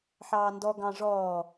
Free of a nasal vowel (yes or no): no